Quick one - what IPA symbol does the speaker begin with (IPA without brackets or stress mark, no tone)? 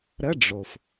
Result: ɾ